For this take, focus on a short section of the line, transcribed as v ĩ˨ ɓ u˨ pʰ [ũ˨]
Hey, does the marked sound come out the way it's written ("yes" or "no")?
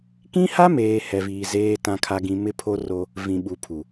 no